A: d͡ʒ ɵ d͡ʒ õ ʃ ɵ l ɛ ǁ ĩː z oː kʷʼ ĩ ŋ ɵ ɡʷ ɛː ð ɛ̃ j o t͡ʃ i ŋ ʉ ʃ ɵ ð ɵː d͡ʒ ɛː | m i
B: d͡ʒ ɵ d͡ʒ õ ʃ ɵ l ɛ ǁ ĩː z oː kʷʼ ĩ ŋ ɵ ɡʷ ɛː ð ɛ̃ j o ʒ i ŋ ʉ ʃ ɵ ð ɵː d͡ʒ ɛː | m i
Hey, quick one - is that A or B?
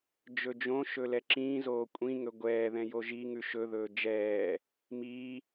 B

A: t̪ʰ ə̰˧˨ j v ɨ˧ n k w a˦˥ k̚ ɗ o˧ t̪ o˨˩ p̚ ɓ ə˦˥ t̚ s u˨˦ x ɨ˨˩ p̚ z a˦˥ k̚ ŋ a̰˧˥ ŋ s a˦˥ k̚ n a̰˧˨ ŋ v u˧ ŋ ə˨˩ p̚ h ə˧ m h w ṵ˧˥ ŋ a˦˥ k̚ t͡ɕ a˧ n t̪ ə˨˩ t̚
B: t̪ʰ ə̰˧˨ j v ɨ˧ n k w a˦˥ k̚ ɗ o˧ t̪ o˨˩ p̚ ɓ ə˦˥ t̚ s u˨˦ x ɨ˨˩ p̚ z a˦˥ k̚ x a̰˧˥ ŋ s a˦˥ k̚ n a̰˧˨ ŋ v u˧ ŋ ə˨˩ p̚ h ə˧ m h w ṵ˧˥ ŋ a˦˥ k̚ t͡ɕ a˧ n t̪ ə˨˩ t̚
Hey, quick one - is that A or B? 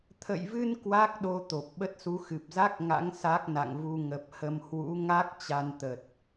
A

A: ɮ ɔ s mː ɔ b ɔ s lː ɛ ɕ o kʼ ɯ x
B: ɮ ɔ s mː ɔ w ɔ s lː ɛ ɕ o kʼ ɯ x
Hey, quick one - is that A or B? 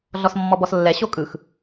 A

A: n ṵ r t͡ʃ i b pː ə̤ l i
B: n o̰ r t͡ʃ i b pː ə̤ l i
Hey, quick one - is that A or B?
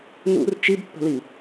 A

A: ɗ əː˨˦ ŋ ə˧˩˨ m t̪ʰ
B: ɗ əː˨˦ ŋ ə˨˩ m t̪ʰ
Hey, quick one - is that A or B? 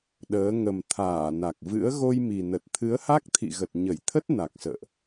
B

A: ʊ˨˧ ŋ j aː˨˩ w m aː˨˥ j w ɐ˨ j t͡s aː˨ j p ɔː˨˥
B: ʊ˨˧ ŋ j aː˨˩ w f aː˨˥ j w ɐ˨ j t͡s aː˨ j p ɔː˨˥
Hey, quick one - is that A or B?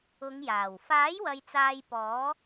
B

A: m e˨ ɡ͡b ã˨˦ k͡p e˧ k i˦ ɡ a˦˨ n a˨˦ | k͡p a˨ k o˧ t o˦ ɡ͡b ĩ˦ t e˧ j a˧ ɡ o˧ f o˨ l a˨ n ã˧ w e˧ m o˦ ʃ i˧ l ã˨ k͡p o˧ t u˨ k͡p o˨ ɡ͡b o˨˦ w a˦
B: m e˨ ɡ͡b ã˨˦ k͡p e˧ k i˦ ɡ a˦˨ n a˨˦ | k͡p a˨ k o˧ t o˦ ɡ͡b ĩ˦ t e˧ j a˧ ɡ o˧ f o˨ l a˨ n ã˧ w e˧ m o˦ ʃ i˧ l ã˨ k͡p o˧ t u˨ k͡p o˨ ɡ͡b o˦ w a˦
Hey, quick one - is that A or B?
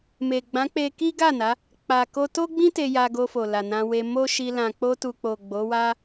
A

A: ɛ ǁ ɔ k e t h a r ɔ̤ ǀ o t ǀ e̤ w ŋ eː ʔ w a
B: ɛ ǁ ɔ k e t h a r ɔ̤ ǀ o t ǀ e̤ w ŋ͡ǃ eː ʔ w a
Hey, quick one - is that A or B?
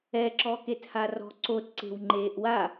B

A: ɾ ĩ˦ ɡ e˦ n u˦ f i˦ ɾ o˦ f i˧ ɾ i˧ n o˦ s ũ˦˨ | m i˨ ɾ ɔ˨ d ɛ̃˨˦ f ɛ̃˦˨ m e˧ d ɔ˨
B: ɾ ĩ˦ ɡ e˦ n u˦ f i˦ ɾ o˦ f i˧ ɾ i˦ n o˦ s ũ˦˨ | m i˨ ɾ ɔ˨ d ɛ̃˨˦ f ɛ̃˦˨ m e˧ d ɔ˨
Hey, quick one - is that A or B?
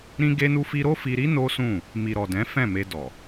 B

